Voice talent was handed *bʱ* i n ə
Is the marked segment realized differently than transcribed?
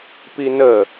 yes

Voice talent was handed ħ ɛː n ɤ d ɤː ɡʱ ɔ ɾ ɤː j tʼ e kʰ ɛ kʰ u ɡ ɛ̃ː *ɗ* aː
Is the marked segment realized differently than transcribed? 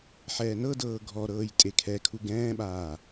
yes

